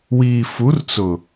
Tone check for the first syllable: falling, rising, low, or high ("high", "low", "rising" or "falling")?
low